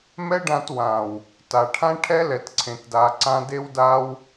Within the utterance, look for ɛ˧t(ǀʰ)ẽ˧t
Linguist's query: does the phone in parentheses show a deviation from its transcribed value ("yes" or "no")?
no